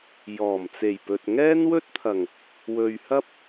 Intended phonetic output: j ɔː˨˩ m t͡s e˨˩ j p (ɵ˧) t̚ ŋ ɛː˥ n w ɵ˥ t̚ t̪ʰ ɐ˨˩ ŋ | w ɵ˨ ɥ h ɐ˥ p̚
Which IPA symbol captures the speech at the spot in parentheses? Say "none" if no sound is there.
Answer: ɵ˨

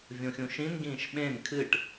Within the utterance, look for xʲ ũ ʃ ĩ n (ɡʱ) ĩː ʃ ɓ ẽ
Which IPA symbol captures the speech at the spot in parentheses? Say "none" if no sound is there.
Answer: ɡ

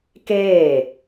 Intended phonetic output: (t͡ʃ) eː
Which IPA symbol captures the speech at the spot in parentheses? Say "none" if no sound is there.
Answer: k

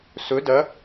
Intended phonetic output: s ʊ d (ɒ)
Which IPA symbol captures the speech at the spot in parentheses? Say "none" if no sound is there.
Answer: ʌ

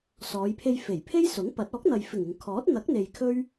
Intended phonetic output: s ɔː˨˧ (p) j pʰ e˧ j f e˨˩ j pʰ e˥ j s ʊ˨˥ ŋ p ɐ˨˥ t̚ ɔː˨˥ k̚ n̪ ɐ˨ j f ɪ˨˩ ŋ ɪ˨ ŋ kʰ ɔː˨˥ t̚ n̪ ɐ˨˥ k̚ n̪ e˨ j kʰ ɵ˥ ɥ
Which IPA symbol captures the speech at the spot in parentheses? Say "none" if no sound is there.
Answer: none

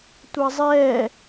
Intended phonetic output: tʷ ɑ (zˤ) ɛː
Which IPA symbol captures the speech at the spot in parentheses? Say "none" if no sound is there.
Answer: zˤ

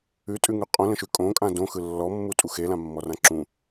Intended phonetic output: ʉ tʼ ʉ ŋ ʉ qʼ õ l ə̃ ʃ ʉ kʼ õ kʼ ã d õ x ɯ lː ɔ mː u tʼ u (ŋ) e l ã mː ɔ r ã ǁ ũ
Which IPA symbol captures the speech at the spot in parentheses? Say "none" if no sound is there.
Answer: x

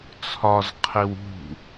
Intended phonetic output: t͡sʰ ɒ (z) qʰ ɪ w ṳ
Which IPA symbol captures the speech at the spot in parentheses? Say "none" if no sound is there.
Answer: z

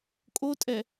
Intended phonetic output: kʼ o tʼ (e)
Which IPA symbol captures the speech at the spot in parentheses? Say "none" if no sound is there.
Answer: ɛ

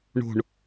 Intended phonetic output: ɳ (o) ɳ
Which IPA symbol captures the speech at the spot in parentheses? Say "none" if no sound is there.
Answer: o̤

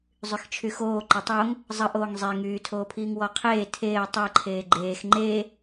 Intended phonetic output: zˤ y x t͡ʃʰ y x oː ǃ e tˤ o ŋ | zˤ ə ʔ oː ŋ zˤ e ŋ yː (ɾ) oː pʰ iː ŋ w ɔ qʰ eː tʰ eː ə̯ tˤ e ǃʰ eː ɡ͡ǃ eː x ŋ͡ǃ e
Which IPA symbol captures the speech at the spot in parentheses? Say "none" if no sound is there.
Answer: tʰ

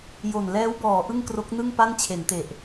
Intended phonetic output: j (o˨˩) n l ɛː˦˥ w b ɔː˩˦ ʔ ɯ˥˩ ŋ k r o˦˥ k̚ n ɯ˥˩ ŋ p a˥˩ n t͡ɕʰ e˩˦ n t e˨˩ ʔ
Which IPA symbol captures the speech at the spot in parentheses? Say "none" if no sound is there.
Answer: o˨˩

